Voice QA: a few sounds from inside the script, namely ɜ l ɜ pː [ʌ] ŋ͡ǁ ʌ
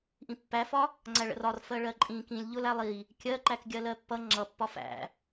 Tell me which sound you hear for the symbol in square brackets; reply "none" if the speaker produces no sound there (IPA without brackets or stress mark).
ʌ